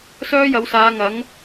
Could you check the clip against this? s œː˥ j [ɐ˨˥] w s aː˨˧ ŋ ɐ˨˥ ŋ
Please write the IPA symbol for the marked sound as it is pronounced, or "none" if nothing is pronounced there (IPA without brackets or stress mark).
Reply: ɐ˨˧